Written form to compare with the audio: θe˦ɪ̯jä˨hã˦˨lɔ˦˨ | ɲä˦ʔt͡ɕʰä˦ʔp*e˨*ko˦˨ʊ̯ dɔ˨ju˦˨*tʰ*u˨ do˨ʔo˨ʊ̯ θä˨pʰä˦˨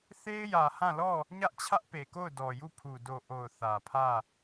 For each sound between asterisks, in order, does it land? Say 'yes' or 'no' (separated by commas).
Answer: yes, no